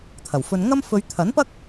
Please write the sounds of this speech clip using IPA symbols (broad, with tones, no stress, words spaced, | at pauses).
t̪ʰɐ˨˩wfɵ˧n ŋɐ˥m fɵ˨˧ɥt̪ʰɐ˨˥npɐ˥k̚